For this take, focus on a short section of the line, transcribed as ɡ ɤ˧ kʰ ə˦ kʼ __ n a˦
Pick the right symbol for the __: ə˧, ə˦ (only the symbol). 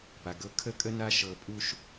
ə˦